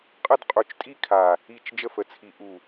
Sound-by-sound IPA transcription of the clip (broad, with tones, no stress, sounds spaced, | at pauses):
qʼ ə˥˧ d qʼ u˧˩ t͡ʃ tʼ i˥˧ kʰ a˧˩ | i˥˧ t͡ʃ d͡ʒ ə˥˧ f ə˧˩ t͡sʰ i˧˩ ʔ u˧˩